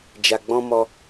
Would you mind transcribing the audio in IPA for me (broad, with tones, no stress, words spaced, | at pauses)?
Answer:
d͡ʒa˨ɡ͡bɔ̃˧mɔ˧